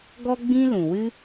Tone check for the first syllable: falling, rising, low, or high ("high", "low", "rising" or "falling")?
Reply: high